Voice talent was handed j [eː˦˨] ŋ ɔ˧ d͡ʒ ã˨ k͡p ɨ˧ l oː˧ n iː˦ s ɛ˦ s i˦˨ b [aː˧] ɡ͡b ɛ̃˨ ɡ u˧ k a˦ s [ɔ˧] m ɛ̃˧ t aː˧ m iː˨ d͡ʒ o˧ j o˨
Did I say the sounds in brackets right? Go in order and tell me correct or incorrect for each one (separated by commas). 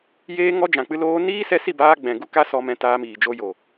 incorrect, correct, correct